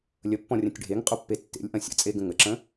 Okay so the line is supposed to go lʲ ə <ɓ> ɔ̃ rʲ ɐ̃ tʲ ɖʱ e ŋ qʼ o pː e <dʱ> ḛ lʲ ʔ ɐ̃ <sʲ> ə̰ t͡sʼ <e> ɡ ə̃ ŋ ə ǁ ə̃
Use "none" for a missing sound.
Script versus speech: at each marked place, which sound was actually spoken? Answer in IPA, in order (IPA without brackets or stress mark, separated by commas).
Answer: pː, tː, sʲ, e